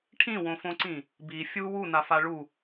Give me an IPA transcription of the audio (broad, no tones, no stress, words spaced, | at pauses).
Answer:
ʈʰĩwõfõǀĩ | bi fʲu wunafa ɭu